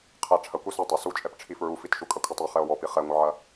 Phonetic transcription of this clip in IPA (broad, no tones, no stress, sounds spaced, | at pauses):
qʰ ɛ ʈ͡ʂʰ ɐ kʷ ɛ s u tˤ ɐ s u t͡ʃʼ ɛ p ʈ͡ʂʰ i f ɹ u f i t ʃ u kʼ ɐ kʷʰ ɘ tˤ e χ ɛ o̯ w ɔ p i χ ɛ ŋʷ ɐ ʕ ɐ